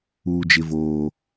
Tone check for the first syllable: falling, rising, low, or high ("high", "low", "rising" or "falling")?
low